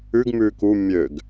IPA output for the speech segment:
ʉ ɡ m ʉː k u mʲ ø ɡ

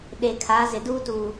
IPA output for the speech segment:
ɗ e˨ kʰ a˨˦ z ɪ˨ d uː˦ t uː˨

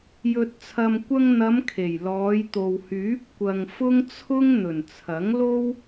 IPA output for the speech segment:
j ɵ˨ t̚ t͡sʰ ɐ˨ m kʷ ɐ˧ ŋ n̪ ɐ˨˧ m kʰ e˨˩ j l ɔː˨˧ j t̪ o˨ w h yː˨˥ p̚ kʷ ɐ˨ ŋ f ʊ˥ ŋ t͡sʰ ʊ˥ ŋ n̪ ɵ˨˩ n t͡sʰ ɐ˨˥ ŋ l o˥ w

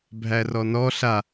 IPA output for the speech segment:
bʱ æ r ɔ n ɔ ɬ a

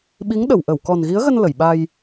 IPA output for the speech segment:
ɓ i˨˦ ŋ ɗ ə˧˩ w ʔ ə˧˩ w k ɔ˨˩ n ɣ i˨˦ ə̯ ɣ ə˧ n l ə˧˩ j ɓ a˧ j

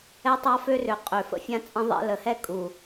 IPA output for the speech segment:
ɛ˦ tˤ a˦ f ø˦ r ø˨ qʼ ø˨ f ə̰˦ fʲ ã˦ t͡sʼ ə̃˦ ðˤ ɛ̰˦ l ə˨˦ h ɛ˦ kʼ u˨

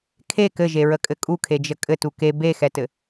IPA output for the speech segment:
kʰ e k ɘ ʒ e ɹ ə kʼ ɘ kʼ u kʰ e d͡ʒ ə kʼ ɘ t u k e b e x ɛ t ɘ

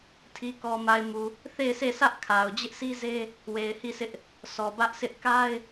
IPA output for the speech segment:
tʰ i˨ k ɔ˨ m a˨ ɪ̯ m u˨ | θ e˦˨ ɪ̯ sʰ e˦˨ sʰ ä˦ ʔ kʰ a˨ ʊ̯ d͡ʑ ɪ˦ ʔ sʰ i˦ z e˦ | w e˨ ɪ̯ h i˦˨ sʰ ɪ˦ ʔ | sʰ ɔ˨ b ä˦ ʔ s ɪ˦ ʔ k a˦ ɪ̯

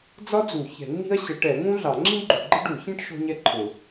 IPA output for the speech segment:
d͡z ɒ˥ d͡z u˨˩˦ ç ɛ̤˨˩˦ nː i̤˥ ɐ̯ ɕ ə˨˩˦ ʈ ɛ˨˩˦ ŋ ũ˥ ɮ ɑ˨˩˦ ŋ͡ǁ ĩ˥ ɡ͡ǃ u˨˩˦ ɡ͡ǃ ɪ˥ ɖ u˨˩˦ ç ĩ˥ ʈ ʃ ɔ̤˥ ɲ ɛ˥ ǃʰ ʊ˨˩˦

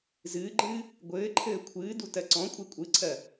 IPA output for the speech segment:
z ɨː ɡ͡ǃ ɨː | ɡʷ ɘː ǃʰ ɘː kʷʰ ɨː d u t ɜ ǀ ɔ̃ kʷʼ ɜ kʷʼ ɨ ǀʰ ɜ

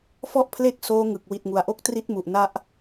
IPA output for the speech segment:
f ɔ˥˩ ʔ pʰ l e˥˩ k̚ s oː˦˥ ŋ ɯ˨˩ k̚ w i˨˩ t̚ ŋ u˩˦ a̯ ʔ o˦˥ k̚ t r i˦˥ t̚ m u˨˩ ʔ n a˦˥ ʔ

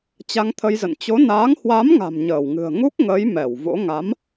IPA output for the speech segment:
t͡ɕ a˧ ŋ t̪ʰ ə˧ j z ə̰˧˨ n t͡ɕ o˨˦ n aː˨˦ ŋ h w a˨˦ m ŋ a̤˨˩ m ɲ əː˧˩ w ŋ ɨ̤˨˩ ə̯ ŋ u˦˥ k̚ ŋ ə˨˦ j m ɛ˧˩ w v o̰˧˥ ŋ a˨˦ m

